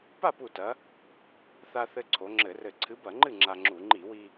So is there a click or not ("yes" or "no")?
yes